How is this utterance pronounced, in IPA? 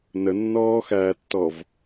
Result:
nənːɔːxæːtːɔv

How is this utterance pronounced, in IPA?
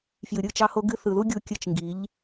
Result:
fjɨ˨ɾʲɯ˦˨ t͡ʃɑ˦ho˦ɡɨ˦ θɯ˨ðu˦ɡʲu˧ kʲɨ˧t͡ʃŋɡi˨˦ʎ

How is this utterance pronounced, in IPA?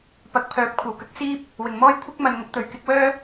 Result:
pɐ˨k̚pʰœː˨˥p̚ kʷʰɐ˨˩w kɐ˧k̚siː˥p̚ | wɪ˨˩ŋ mɔː˥j kʷʰɪ˥k̚mɐ˨nŋʊ˨˥k̚t̪ɵ˨˩ɥ kɪ˧k̚wœː˥

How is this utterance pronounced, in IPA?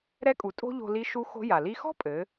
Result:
ɾɛ˧˥kʼu˩˧ tʼo̤˥ʎo̤˧ li˧˥ʃu˧˥ xo̤˧˥ ja˩li˧xɔ̤˥pʼɘ˩˧

